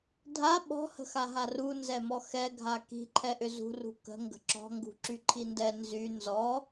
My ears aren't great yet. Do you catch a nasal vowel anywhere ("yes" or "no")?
no